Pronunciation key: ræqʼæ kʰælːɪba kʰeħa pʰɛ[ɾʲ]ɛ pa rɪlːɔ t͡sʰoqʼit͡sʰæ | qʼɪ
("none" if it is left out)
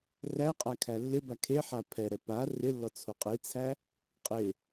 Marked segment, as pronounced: ɾ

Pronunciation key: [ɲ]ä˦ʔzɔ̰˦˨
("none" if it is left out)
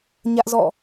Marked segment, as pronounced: ɲ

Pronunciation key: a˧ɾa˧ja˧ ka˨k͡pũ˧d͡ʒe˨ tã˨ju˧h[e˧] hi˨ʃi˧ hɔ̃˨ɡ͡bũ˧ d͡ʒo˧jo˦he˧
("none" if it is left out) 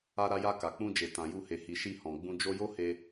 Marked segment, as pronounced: e˨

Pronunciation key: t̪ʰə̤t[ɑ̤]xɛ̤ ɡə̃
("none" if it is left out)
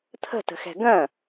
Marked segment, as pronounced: ə̤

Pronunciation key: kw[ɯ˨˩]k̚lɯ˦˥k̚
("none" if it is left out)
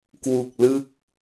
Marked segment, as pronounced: u˨˩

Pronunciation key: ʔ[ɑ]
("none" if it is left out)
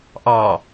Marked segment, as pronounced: ɑ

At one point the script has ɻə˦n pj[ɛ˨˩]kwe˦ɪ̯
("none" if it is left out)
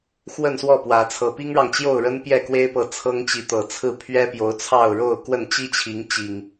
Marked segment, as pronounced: ɛ˥˨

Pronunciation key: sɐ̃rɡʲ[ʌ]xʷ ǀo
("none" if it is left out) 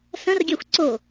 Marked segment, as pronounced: a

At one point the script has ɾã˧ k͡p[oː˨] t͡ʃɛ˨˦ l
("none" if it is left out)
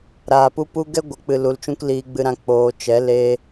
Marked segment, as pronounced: oː˨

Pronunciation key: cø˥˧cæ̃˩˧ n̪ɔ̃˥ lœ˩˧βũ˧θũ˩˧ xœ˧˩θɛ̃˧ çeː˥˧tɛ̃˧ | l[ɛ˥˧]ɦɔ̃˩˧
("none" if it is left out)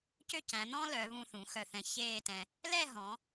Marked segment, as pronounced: ɛ˥˧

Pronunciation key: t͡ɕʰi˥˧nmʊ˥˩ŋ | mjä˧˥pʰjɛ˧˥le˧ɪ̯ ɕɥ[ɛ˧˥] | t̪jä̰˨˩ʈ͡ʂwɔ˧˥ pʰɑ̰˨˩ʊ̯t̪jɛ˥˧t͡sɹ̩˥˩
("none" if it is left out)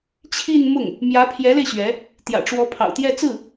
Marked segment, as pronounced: ɛ˧˥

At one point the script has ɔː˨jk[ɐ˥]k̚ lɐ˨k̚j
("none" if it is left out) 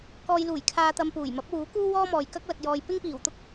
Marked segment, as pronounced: ɐ˥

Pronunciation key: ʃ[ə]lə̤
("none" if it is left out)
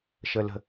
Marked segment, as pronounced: ə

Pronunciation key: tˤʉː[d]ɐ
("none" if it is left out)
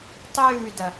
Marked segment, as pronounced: d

